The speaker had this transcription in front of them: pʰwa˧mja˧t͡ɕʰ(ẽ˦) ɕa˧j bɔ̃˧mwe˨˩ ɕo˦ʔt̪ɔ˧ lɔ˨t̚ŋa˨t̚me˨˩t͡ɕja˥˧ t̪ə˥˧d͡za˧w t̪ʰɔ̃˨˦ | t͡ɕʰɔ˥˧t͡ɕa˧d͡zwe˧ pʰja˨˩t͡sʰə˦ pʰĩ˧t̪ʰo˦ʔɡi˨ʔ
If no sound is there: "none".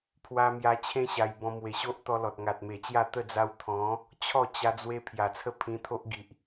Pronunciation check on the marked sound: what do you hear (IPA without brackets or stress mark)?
ẽ˦